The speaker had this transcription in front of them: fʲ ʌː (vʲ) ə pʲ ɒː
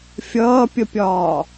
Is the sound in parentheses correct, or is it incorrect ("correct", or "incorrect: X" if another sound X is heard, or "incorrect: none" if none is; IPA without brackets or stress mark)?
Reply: incorrect: pʲ